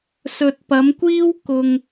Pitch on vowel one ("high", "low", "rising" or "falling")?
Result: low